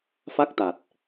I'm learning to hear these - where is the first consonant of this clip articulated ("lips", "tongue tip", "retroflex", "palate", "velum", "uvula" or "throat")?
lips